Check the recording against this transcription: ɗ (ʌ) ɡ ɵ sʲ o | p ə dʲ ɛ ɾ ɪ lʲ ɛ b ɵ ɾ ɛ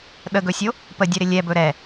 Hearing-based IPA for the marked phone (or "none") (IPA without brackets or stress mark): ə